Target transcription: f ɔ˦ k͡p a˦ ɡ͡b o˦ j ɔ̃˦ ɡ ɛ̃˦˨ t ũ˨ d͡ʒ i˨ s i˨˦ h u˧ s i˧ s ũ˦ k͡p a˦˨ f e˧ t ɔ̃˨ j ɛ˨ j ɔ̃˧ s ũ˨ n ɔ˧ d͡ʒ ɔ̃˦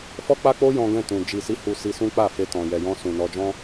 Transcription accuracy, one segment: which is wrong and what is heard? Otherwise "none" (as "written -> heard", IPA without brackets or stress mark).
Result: ɡ͡b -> k͡p